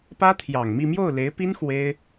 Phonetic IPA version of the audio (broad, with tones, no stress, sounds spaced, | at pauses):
p ä˥ t̪ʰ j ɑ˨˩ ŋ m i˥˧ m j o˥˩ ʊ̯ l e˧˥ ɪ̯ p i˥ n x w e˥ ɪ̯